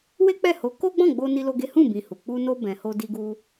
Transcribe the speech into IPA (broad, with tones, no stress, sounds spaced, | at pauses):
w e˦ k͡p ɛ˦˨ h o˨˦ k o˦ ɡ͡b ɔ̃˦˨ ɡ͡b o˧ n i˦ l o˦ ɡ e˦ h ũ˦˨ b ĩ˨ h u˨ k͡p u˧ n o˧ b ɛ̃˧ h o˦ d i˦ ɡ u˦